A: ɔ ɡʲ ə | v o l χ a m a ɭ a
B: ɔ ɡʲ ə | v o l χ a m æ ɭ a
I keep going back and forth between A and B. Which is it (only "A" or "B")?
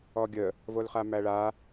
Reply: B